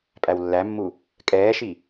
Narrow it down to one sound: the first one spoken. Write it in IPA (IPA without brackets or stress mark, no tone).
pʼ